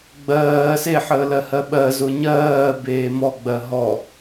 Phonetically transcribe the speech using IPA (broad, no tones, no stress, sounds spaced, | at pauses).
ɡ͡b ɜː s e ħ əː l ɜ h ɜ ɓ ɜ z ʊ ɲ ɜː b eː m ɔ ɡ͡b ɜ ɦ ɔ